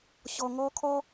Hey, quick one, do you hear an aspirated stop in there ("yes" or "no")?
yes